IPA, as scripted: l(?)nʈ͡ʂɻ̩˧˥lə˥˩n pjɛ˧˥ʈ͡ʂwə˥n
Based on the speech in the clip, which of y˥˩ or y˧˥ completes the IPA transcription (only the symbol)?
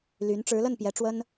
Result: y˧˥